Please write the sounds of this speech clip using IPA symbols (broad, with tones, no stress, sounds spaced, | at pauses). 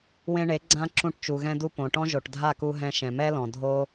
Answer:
w ẽ˧ ɳ e˨˦ ɡ͡ǀ ã˧ ǁ ũ˧ ʈ t͡ʃ u˨ ɣ ɛ̃˧ d u˧ p õ˨ ʈ ɔ̃˦ ʒ o˨ ʈ dʱ a˦˨ k u˧ ɦ ɛ̃˧ ʃ ɛ̃˨ m ɛ˦ l ɔ̃˨ dʱ o˦